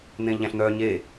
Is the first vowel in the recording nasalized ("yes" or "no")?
yes